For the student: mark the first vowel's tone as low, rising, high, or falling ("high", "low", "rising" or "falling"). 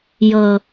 low